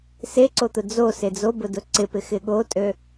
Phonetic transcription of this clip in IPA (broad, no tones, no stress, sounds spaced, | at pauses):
s e ǀ o t̪ ʊ d͡z o s e d͡z o b ʊ d ʊ ǀ ɪ p ɪ x ɪ ɠ o tʼ ø